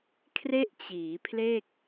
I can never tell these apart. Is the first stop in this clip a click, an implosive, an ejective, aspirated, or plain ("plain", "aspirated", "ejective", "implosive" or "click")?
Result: aspirated